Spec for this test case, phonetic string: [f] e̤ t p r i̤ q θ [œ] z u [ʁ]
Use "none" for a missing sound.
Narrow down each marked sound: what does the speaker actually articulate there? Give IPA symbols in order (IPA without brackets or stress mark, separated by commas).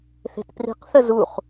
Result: θ, ə, χ